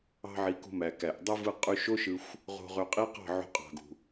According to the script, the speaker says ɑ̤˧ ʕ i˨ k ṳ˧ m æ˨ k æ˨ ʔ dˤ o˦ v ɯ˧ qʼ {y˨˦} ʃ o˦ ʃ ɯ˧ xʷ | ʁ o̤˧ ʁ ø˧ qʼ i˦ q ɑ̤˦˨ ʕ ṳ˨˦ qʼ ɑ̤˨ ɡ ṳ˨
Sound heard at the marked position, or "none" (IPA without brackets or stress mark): y˧